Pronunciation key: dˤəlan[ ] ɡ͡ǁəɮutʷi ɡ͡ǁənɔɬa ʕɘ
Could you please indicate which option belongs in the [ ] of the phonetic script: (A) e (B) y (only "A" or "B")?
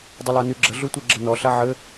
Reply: B